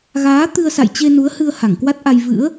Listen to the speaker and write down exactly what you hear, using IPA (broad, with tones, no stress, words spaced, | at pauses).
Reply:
ɣaː˨˦ t̪ɨ˧ə̯sa̰˧˨jt͡ɕe˧ nu˨˦ə̯hɨ˧ə̯ ha˧˩ŋkwa˦˥t̚ʔa˧j vɨ̰˧˥ə̯